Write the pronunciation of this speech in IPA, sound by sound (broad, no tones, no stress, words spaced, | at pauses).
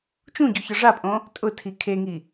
t͡ʃũɟu çɔʐapʼõ | tʼʊtʰi kʰeŋi